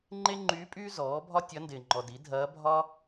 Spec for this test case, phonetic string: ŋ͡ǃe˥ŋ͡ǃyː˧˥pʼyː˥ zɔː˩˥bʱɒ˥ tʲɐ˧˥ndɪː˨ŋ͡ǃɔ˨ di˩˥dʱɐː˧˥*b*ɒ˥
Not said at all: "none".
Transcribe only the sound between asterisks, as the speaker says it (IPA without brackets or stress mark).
bʱ